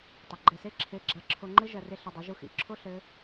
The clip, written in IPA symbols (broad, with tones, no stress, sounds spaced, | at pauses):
tˤ ɘ˩˧˩ ɡ͡ǃ ɛ˧˩ s e˦˥ ǁʰ e˨˥ ɡ͡ǁ a˨˥ ǁʰ o˧ ŋ͡ǃ ɘ˦˥ ʒ ɐ˧˩ r e˧ ɬ ɘ˧ dˤ ɐ˨˥ ʒ u˧ x ḭ˨˥ ǁʰ o˦˥ ɬ ɘ˦˥